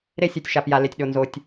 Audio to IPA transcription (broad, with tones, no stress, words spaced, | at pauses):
ɾe˦sʲo˨tʲ ʃa˨pja˨ le˨tʲɗo˨ nzo˨tʲ